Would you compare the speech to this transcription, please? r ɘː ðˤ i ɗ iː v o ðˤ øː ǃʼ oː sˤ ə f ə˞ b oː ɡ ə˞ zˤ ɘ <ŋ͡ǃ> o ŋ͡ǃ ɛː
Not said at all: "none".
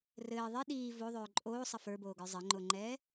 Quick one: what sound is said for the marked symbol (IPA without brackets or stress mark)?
ŋ͡ǃ